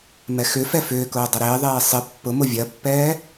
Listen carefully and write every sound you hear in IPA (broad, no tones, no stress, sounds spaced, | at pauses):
m ɛ x ʏ f ɛ f ʏː k ʊː dˤ ɐ ɾ ɪː ðˤ eː sˤ ɪ pː ʊ m ʊ vʲ ɐ pː ɛː